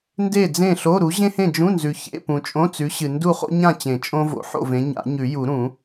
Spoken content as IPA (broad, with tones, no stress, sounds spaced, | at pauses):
n d e˥˨ d͡z ẽ˥˨ ɬ o˧˥˧ ɾ u˨˥ ʑ ẽ˥ h ẽ˥˨ d͡ʒ ũ˧˥˧ n z ʉ˨ ç ḛ˧˥˧ p ũ˨ t͡ʃʼ õ˧˥˧ t͡s ʉ˨˥ ɕ ɨ˨ n d u˥˨ χ o̰˥ ɲ ã˥˨ t͡ɕ ẽ˨˩˦ t͡ʃʼ õ˥ v o̰˨˩˦ ħ o̰˥˨ v ẽ˨˥ ɲ a̰˨˩˦ ɲ ʉ˨˩˦ j u˨˩˦ ɾ ũ˨˩˦